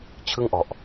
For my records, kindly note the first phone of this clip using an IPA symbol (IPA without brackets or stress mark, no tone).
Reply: t͡ɕʰ